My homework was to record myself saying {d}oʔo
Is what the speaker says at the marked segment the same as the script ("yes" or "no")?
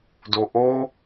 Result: yes